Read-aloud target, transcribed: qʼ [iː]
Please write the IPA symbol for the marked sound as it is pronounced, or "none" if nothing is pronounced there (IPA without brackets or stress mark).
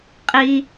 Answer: i